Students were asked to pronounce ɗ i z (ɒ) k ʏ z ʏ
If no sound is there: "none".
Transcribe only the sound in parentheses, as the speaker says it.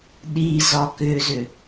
ɒ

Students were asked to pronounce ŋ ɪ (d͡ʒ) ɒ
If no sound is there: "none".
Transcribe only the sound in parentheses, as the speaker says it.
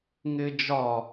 d͡ʒ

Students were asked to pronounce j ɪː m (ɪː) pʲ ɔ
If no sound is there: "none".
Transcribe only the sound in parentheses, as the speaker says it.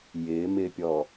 ɪː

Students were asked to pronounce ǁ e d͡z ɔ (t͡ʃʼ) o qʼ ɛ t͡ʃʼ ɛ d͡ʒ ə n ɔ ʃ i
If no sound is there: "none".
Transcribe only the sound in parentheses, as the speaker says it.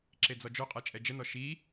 d͡ʒ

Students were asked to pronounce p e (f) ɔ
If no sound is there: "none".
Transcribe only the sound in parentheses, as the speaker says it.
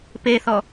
θ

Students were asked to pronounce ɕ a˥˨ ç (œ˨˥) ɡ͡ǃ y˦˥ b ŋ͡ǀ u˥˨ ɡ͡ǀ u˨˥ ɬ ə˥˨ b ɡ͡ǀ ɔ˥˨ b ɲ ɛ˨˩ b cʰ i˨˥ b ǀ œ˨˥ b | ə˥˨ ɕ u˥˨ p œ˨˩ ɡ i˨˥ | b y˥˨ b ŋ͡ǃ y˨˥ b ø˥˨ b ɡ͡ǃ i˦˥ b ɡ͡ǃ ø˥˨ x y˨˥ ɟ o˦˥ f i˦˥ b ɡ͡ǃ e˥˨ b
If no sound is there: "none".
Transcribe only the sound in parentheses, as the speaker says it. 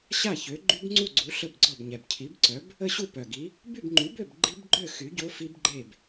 ø˨˥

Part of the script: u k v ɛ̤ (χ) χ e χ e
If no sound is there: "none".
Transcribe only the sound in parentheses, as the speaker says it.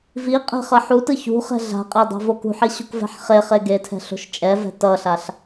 ħ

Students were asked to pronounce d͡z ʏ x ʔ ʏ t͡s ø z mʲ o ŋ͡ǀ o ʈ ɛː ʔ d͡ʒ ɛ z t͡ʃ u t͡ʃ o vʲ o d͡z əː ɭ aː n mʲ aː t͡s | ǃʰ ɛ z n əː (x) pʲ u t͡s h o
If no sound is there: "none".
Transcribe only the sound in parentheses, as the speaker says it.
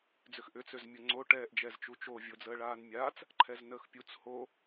x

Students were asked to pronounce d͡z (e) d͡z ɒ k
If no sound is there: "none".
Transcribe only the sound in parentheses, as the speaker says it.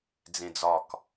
ẽ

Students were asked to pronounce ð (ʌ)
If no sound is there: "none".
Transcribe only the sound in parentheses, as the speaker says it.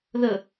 ə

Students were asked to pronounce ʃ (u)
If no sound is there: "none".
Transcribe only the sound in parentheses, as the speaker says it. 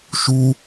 u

